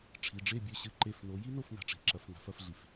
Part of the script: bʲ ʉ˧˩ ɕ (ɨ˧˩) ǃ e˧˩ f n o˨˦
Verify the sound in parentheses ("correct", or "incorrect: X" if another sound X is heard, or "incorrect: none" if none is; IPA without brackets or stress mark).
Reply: correct